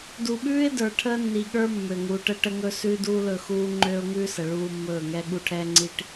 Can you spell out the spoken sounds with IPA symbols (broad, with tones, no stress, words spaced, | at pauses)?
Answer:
du˨ɓʉː˦ɪ̯də˞˨ ʈʰəː˦nːi˨ɠə˞˦ mːø˨ŋu˨˦ʈə˦ ʈə˦ŋɵ˦ sʉː˦duː˦lɵ˦˨xuː˦ ŋ͡ǃøː˦ʊ̯ŋʉː˦sə˨ ɭuː˦ mːɵː˦˨ŋɛ˦ ɠu˦ʈʰɛː˦ŋ͡ǀi˦ʈ